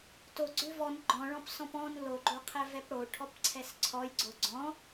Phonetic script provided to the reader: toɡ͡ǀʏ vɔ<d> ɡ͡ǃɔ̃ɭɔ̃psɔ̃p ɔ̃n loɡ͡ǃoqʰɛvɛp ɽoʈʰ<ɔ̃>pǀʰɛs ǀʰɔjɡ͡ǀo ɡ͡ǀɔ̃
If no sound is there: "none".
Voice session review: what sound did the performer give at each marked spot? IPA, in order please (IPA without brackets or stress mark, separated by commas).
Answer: n, ɔ